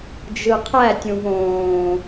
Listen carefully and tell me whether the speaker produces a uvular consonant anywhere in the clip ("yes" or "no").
yes